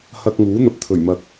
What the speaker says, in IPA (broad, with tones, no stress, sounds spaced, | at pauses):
h ɐ˧ k̚ ŋ uː˨˥ n̪ ɐ˨ p̚ t̪ʰ ɵ˨˩ ɥ m ɐ˨ k̚